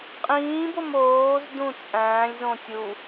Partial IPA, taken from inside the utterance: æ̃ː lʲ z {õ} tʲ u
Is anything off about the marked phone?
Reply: no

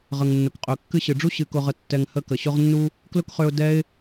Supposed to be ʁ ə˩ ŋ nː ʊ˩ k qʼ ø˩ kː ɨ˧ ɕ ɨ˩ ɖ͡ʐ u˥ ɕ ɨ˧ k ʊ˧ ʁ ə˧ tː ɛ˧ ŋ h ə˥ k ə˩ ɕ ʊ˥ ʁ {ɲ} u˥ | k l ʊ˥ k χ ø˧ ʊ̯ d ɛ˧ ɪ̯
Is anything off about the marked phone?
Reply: yes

